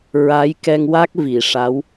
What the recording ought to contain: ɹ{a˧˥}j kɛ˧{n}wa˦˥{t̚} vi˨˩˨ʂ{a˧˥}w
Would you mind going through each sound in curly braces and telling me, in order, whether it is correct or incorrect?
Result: correct, incorrect, incorrect, correct

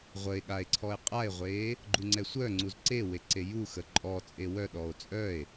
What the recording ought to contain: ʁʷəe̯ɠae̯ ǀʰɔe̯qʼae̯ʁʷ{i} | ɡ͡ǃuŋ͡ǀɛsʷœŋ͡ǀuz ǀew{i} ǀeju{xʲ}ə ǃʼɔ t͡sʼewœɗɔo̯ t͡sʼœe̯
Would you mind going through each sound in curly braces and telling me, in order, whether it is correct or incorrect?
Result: incorrect, incorrect, incorrect

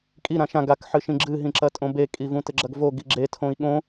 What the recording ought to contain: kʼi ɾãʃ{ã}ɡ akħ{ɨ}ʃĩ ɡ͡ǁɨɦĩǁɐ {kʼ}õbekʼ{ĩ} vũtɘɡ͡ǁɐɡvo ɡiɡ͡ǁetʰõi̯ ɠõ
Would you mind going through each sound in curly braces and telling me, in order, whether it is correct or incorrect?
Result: correct, correct, incorrect, incorrect

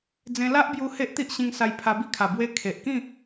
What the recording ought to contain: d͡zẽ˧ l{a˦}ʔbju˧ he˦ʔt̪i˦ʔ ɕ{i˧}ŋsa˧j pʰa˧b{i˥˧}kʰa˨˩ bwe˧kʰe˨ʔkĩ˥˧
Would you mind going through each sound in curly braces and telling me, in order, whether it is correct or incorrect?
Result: correct, incorrect, correct

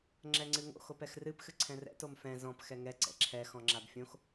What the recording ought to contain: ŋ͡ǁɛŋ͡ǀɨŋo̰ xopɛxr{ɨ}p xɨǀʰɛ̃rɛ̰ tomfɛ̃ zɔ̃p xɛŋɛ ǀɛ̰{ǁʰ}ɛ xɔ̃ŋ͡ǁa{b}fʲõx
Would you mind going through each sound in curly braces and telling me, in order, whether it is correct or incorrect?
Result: correct, correct, correct

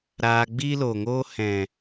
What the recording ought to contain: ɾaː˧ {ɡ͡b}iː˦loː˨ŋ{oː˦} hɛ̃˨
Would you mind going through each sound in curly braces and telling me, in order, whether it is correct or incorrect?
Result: correct, correct

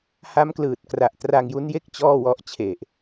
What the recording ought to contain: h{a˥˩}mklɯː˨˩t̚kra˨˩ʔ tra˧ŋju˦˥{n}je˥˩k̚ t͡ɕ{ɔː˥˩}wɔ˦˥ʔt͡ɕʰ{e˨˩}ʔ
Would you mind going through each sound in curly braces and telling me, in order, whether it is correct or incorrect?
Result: incorrect, correct, correct, correct

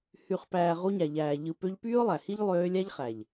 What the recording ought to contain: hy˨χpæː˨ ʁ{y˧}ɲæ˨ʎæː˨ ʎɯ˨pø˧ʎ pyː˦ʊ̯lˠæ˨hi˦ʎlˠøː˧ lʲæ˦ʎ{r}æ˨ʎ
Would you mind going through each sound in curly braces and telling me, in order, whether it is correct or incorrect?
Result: incorrect, incorrect

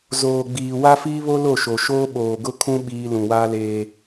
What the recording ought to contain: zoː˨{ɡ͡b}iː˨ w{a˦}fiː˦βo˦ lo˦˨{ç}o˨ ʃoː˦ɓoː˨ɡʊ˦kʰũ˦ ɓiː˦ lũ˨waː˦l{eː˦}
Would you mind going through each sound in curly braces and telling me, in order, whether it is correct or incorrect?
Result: correct, correct, incorrect, correct

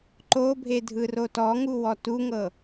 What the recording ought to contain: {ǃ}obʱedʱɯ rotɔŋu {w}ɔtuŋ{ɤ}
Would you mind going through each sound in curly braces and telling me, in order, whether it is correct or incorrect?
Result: correct, correct, correct

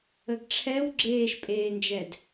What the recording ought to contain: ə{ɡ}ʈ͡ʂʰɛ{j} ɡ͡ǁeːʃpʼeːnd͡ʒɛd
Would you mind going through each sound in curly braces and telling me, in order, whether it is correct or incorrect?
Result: correct, incorrect

